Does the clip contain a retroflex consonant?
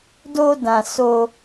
no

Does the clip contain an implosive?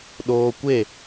yes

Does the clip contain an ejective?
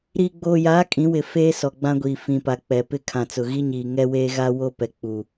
yes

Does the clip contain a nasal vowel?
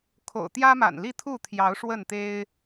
no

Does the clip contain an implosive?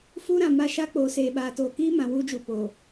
yes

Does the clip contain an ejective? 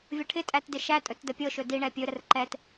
yes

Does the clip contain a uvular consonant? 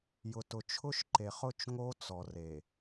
yes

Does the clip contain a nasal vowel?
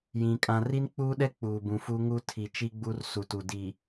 yes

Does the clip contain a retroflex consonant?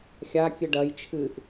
yes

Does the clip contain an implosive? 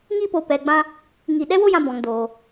yes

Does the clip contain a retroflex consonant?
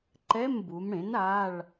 yes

